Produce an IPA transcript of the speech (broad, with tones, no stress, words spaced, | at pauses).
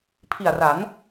pʰi˨˩a̯ra˩˦n